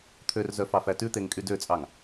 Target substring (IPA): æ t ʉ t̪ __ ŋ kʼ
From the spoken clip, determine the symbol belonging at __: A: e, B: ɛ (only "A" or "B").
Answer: A